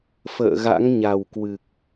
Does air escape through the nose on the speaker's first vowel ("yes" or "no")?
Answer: no